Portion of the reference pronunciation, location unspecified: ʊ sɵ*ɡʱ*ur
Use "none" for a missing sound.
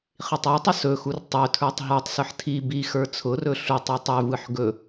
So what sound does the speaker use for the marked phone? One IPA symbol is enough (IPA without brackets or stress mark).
x